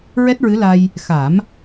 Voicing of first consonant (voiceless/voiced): voiced